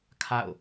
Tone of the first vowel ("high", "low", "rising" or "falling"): falling